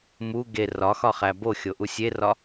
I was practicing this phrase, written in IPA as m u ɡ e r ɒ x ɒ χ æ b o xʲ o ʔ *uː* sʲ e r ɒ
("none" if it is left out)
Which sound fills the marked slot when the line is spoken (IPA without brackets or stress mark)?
u